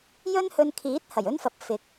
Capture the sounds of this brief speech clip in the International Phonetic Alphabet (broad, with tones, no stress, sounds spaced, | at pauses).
j ɵ˥ n h ɵ˧ n kʰ iː˨˥ t̚ h ɐ˨˩ j ɵ˥ n f ɐ˨˥ p̚ f ɪ˨ k̚